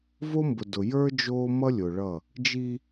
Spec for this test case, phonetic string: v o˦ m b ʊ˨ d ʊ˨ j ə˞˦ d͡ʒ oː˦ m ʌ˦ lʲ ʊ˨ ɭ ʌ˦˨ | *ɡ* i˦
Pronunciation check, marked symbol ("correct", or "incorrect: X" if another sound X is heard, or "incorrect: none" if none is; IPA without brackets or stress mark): incorrect: d͡ʒ